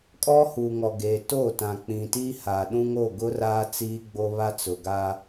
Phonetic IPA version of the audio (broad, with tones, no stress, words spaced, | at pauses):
kʼɔ˦huː˨ŋɔ˨ɡeː˨ toː˦˨tã˨k͡pĩ˨tiː˦ ha˨ɗũ˦ŋo˦˨ ɡʊ˦raː˦ t͡siː˦ɡ͡bo˦ βa˦t͡sʊ˨ɡa˦